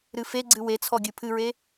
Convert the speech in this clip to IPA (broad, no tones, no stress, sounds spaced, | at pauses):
ɾ ɨ f e ɡ͡ǀ ɨ w e t͡sʰ ɔ ɡʲ ɨ pʰ ɨ ɹ e